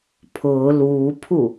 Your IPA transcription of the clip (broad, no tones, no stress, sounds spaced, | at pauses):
pʰ ʊː l uː pʰ u